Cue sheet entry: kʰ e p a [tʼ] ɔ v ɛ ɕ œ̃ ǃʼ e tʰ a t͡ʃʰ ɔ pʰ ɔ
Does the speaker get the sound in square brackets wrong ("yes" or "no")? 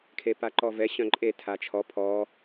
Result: yes